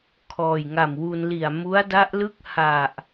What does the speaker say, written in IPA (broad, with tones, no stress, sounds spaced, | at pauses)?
kʰ ɔː˨˩ j ŋ a˨˩ m w u˧ n l i˨˩ a̯ m u˦˥ a̯ d a˦˥ ʔ l ɯ˥˩ k̚ h a˨˩ ʔ